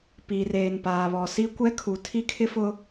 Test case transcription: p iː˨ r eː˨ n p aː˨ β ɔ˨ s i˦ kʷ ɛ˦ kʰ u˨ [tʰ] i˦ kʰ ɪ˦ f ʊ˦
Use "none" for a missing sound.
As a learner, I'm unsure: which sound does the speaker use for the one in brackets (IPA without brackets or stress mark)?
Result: tʰ